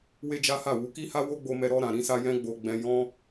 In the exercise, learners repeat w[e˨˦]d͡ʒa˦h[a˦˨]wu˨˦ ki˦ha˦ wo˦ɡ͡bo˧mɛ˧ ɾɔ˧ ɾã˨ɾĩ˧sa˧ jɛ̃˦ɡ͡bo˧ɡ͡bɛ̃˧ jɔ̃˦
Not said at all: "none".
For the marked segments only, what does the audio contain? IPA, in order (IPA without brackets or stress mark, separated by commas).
e˦, a˦˨